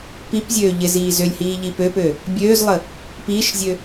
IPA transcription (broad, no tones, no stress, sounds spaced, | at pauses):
p i p zʲ øː ʎ ɪ z iː z ʏ lʲ h iː ʎ i p ø p ø | bʲ øː z lˠ ə | p iː ʃ zʲ ø